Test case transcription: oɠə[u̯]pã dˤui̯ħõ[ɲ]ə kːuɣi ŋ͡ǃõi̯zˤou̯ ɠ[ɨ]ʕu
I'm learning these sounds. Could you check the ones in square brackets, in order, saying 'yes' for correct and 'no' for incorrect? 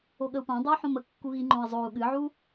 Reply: yes, no, yes

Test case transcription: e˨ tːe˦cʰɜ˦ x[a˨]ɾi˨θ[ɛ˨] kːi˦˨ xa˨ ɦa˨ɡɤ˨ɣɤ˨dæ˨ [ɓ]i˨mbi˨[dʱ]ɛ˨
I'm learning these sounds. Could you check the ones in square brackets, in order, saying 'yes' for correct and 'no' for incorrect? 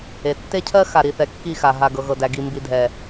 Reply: yes, yes, no, yes

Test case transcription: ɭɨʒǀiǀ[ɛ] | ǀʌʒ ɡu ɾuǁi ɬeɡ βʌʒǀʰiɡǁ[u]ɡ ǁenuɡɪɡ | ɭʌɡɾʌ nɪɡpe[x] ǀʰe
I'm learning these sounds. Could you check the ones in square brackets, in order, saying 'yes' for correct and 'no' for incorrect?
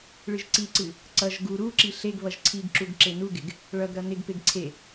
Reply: no, yes, no

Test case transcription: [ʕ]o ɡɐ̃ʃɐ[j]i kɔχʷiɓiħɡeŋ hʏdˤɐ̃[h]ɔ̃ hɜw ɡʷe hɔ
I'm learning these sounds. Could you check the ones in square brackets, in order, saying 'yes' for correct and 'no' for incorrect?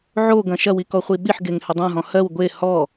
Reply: yes, no, no

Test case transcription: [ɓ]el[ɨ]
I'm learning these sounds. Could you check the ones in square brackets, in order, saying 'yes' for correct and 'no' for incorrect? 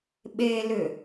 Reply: yes, no

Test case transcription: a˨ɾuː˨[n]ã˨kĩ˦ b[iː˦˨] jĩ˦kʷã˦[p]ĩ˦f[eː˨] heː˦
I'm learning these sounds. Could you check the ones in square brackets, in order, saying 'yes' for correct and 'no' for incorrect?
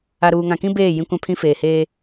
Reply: no, no, no, yes

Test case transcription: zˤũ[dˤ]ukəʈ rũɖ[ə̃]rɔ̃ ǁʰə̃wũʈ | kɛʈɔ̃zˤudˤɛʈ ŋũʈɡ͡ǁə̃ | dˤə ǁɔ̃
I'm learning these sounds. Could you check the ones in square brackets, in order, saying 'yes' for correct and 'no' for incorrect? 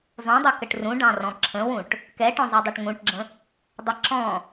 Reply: yes, no

